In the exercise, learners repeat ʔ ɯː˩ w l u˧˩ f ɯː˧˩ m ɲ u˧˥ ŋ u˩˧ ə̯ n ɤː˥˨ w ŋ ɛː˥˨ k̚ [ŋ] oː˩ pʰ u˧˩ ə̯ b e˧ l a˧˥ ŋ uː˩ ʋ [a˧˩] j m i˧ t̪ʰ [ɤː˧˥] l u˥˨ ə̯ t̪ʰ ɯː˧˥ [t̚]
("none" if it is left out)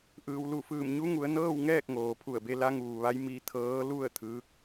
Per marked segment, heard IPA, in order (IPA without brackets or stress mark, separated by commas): ŋ, a˧˥, ɤː˧˥, k̚